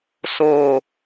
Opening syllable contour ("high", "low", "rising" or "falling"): falling